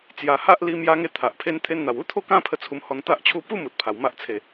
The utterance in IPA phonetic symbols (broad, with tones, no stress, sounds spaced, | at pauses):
t͡s j a˨˩ h a˦ ʔ l i˧ m j a˦ ŋ e˥˧ t̪ʰ a˨ ʔ pʰ e˦ n t̪ʰ e˧ n n̪ a˨˩ w u˦ t̪ʰ o˥˧ k ã˦ pʰ ə˧ t͡sʰ u˧ m h ɔ˧ n t̪ a˦ ʔ t͡ɕʰ u˥˧ p u˦ m u˨ t̚ pʰ a˨˩ w m a˦ ʔ t͡sʰ e˧